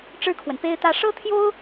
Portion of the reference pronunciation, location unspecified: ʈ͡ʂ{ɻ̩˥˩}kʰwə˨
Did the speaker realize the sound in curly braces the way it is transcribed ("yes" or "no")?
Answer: no